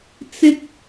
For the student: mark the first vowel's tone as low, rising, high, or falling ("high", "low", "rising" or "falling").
high